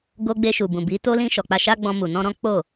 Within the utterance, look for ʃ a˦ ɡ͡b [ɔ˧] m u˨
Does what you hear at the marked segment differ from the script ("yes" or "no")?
yes